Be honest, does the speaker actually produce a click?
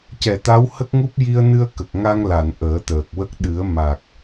no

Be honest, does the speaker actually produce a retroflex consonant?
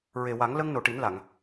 yes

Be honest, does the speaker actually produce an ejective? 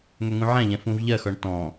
no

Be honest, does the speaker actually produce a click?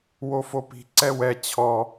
yes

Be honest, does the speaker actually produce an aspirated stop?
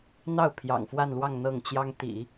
yes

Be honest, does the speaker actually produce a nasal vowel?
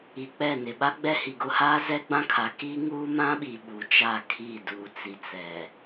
yes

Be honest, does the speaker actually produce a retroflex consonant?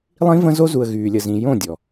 no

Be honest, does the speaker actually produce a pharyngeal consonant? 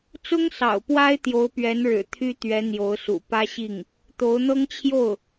no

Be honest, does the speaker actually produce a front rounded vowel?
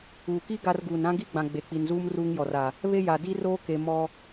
no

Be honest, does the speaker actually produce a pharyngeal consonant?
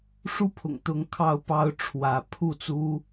no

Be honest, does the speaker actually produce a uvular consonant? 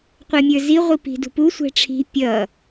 yes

